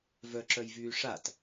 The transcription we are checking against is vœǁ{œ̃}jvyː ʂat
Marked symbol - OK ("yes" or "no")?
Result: no